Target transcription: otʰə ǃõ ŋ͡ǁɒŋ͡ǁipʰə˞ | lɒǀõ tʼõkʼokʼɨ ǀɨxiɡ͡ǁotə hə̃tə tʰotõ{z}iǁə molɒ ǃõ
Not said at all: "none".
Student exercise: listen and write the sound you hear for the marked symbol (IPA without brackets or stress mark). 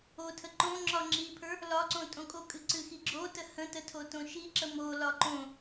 ʃ